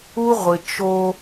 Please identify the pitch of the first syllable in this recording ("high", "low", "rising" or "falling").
high